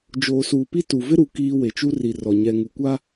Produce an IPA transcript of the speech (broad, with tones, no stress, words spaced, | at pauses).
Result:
d͡ʒoː˨suː˨pi˦ tu˨ vɪ˦ɾu˨ kiː˦ we˨t͡ʃu˦ri˨rɔ˨ ɲɛ˨ŋu˨kʷa˦